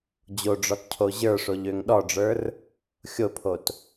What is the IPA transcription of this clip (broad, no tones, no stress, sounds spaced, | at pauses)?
d͡ʑ o ɖ͡ʐ ɔ t cʰ o ʑ ə˞ ʂ o ʎ ø ŋ ɗ ɔ ɖ͡ʐ ə˞ r | xʲ o pʰ o t